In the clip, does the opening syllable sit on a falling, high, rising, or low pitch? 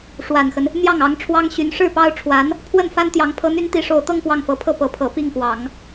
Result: low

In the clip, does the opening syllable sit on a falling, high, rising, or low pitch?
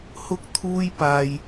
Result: high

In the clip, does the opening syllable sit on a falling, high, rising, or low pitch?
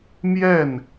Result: falling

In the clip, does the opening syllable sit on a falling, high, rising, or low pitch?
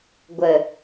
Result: low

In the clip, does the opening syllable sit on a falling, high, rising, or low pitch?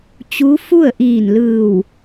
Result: rising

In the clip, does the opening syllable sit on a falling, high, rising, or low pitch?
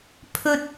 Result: high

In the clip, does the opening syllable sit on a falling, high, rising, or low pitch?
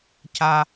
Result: high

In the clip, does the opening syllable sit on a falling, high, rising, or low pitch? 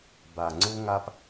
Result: low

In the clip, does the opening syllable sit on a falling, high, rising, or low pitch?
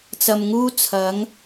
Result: low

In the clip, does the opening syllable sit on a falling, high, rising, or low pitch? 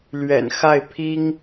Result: low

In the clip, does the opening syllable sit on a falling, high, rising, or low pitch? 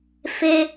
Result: high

